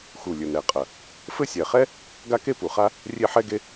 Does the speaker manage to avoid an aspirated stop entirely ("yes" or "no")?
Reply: yes